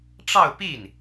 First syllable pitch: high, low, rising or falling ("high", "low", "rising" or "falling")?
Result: falling